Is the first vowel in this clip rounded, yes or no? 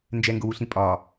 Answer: no